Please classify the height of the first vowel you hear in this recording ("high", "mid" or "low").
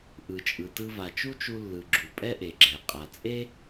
high